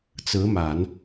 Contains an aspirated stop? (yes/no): no